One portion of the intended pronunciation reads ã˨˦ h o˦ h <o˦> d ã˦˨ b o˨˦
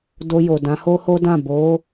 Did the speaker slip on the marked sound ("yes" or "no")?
no